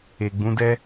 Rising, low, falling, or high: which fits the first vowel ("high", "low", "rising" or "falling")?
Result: low